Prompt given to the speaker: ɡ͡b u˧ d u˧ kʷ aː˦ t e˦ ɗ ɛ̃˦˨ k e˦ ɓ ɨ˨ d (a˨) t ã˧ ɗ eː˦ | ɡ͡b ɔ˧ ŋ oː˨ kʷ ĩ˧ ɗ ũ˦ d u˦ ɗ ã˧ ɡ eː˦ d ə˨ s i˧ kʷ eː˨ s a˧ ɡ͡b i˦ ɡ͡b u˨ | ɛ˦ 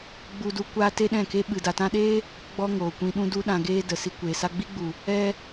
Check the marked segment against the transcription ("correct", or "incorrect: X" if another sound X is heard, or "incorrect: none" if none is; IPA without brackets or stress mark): correct